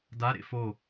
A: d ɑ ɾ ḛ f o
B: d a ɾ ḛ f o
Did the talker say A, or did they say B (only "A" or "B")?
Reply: B